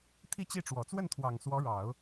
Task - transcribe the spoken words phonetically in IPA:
t̪ʰ i˥˧ t͡ɕ i˥˩ ʈ͡ʂ w ɔ˨˩ t͡s w ə˥˩ n t̪ʰ w ɑ˨˩ ŋ s w ɔ˧˥ ɻ ɑ˨˩˦ ʊ̯

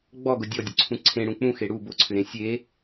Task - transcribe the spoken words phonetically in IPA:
ɡ͡b ɔ ɡ ʊ dʲ ɔ dʲ ʊ ǀʰ ũ ǀʰ ẽ ɽ ũ k͡p ũ x e ɽ u b ʊ ǀʰ ʏ ɾ ẽ sʲ e

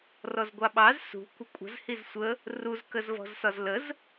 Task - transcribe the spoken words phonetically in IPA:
r ɔ z ɡʷ ɑ ɓ ɑ z s ṳ kʷ ə kʷʼ ə̤ z h i z sʷ ə | r u z k ə z v ɔ̤ z s ɒ z l ə z

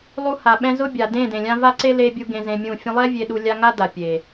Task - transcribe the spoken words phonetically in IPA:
lˠ u˧ h a˨ ɓ ɛ̃˧ z ʊ˦ bʲ a˨ d ẽ˦˨ d ẽ˨ lʲ ã˧ v a˦ ǀ e˦ l e˧ bʲ u˦ ɡ ẽ˧ z ẽ˧ mʲ ũ˦˨ fʲ ũ˧ lˠ ɛ˦ vʲ e˧ ɗ u˧ lʲ a˦ ŋ a˦ d a˨ pʲ e˨

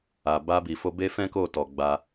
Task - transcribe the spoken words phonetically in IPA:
a˨ b a˧ b i˨ f o˧ b e˦ f ɛ̃˦ k o˦˨ t ɔ˨ ɡ͡b a˧

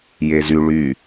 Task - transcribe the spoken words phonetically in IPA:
j e z y ɭ y

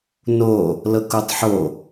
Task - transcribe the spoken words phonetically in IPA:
n o | l ɤ k o tˤ ħ o

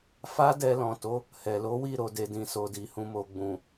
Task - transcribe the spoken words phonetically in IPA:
f a˦ d ɛ˧ l ɔ̃˨ t o˨˦ | h ɛ˨ l o˨˦ w i˦˨ ɾ o˨ d e˨ d ĩ˨ s o˨ d i˨ h ũ˨ m o˨ ɡ͡b ũ˨

